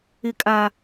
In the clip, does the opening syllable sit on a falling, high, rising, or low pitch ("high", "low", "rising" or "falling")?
high